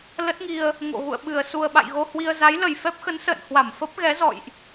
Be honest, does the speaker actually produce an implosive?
yes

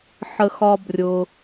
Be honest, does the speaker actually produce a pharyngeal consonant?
yes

